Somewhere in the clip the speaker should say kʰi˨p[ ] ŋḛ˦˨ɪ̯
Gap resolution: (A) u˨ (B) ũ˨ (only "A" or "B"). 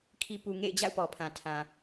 A